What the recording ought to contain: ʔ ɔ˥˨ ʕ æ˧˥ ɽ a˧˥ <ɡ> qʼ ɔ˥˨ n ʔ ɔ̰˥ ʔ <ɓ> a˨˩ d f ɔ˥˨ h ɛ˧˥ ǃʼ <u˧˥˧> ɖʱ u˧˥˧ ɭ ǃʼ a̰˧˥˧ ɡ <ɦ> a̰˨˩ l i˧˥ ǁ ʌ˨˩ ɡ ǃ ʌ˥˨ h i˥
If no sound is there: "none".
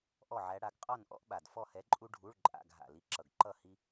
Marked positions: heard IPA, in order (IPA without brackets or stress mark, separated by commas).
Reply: ɡ, ɓ, u˥, ɦ